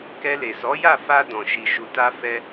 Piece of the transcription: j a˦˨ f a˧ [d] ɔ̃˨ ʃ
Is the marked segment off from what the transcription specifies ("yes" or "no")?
no